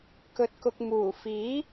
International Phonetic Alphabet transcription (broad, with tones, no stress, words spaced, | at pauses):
kɵ˧t̚kʊ˧k̚ muː˨˩fiː˨˥